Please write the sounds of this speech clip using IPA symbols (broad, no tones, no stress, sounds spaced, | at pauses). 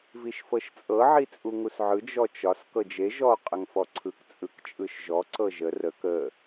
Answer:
v i ʃ f ɤ ʃ t͡sʼ ɤ ʕ i t͡sʼ u ŋ u s ʕ ɯ d͡ʒ ɔ t͡ʃ ɒ s k ɤ d͡ʒ e ʒ ɔ qʼ ə ŋ f ɔ ǀʰ ɯ k t͡sʼ ɯ k t͡ʃʼ ɯ ʃ ʒ ɔ ǀ ɤ ʒ ə r ə k ə